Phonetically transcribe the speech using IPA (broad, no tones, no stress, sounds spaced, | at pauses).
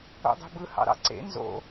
o̰ dˤ e̤ b ɯ h ɑ̰ ɾ ɑ̰ ǀ ḛ n z o̰